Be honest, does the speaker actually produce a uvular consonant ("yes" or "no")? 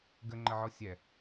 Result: no